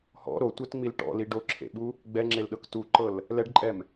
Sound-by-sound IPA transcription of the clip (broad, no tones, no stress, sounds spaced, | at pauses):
h ɔ̰ ɾ o tʷ ɛ t ŋ͡m i l ʈ ɔ̰ l i ɖ o ǁʰ ḛ ɓ u | ɡ͡b ɛ ŋ͡ǁ e l ɗ ɤ k t u ǃ ɤ l | l ɛ ɖ ǃʼ ɛ m